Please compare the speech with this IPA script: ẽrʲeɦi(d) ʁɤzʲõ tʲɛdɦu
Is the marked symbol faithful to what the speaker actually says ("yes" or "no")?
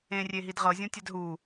yes